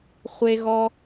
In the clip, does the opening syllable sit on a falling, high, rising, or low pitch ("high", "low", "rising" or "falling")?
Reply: high